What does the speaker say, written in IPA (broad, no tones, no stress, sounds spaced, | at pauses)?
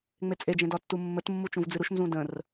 ŋ͡m e t͡sʼ e d͡ʒ ẽ d ɒ tː u mː ə t mː u t͡ʃ ũ v d͡z ɨ ɾ u ʃ n z ũ d ə̃ r